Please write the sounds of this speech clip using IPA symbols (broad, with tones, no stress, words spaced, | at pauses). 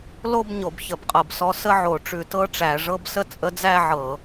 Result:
lo˥˧b ɲo˧˩˧bçə˧˩˧bqʼɤ˧˩˧bsɔ˧˥ sə˥˧ʕo˧˩˧ ʈ͡ʂʉ˧˩˧tɤ˧˥˧ʈ͡ʂæ˧˩˧ ʐɤ˧˥˧bsə˥˧ t͡sʼə˧˥d͡zæ˥˧ ʕɤ˧˩˧